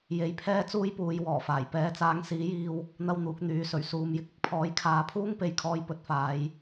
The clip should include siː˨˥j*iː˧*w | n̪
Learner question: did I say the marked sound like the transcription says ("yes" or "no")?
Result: yes